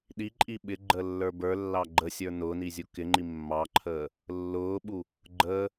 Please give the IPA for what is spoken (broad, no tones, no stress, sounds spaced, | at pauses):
ɗ i ǃʼ i ɓ ɪ ɡ͡ǃ əː lː ə˞ b ə˞ lː ɑ ɡ͡ǃ ə sʲ ə˞ n ʊː n i zʲ u k ɪ ŋ͡ǃ i mː ɑ ǃʰ əː | lː ʊː ɓ u | ɡ͡ǃ əː